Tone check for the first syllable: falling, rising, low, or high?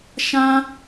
high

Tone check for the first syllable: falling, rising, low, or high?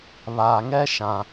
low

